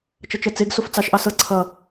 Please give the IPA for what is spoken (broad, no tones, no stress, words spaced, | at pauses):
t͡ʃʌt͡ʃɜt͡seɡ soft͡sɑʃ ʔɑsɤ ǀʰʌ